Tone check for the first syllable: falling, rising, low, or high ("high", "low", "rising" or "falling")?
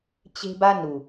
high